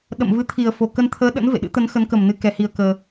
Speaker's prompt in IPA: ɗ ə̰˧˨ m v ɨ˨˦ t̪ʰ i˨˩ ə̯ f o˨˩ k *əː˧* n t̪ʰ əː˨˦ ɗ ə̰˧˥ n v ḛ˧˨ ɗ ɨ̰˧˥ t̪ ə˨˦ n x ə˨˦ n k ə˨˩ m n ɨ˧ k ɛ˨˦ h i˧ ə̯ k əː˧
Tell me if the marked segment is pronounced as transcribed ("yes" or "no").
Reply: no